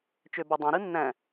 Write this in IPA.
t͡ʃ ø b ɑ dˤ ɑ̃ ɾ ɯ nː æ̃

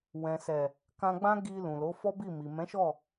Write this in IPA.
w ɛ̃˨ s ɛ˨ | k ã˧ ɡ͡b ã˦ ɡ i˧ l ũ˨ l o˨˦ f ɔ˦ b i˦˨ m i˨ m ɛ̃˨˦ ʃ ɔ˦˨

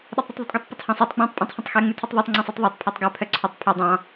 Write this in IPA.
ɗ ɛ tˤ ɾ y tˤ ðˤ y tˤ ɡ ɛ tˤ p o tˤ h ɑ̃ sˤ y tˤ ɡ͡b õ tˤ pʼ ɑ̃ tˤ h œ̃ tˤ x ɛ ŋ͡m ʉ tʰ ʉ tˤ ðˤ æ tˤ ŋ͡ǀ õ sˤ œ tˤ ðˤ æ tˤ pʰ ɑ tˤ ɡ œ pʰ œ ǀʰ œ tˤ pʰ œ dˤ ɑ̃

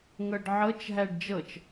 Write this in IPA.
ŋ ɤ ɖ ʕ ɤ t͡ʃ ɦ æ ɖ d͡ʒ ɤ t͡ʃ

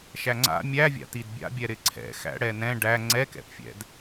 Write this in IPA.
ʃ æ ŋ͡ǀ a̰ mʲ æ vʲ a̰ t i d bʲ a̰ bʲ ɛ ɾ ɪ ǀʰ ɛ̰ x æ̰ ɽ ɛ n ɛ̃ ɖ æ ŋ͡ǀ ɛ k ɛ̰ p fʲ ɛ̰ d

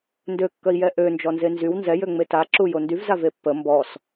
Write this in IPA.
n d ø kː œ i̯ j ɛ ʔ ø n d͡ʒ ɔ n z e n z y w n z ɛ j ø ŋ͡m e t a ǁ u j o n d y v z a v e pː ə m b ɔ s

